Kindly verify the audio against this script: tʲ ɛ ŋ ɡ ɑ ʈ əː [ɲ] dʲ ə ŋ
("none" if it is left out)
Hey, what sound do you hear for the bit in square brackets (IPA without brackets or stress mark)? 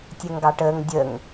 ŋ